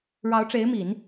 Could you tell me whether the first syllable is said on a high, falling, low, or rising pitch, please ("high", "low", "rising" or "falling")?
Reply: rising